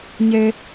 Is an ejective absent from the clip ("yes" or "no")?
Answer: yes